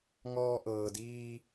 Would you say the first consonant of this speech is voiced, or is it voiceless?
voiced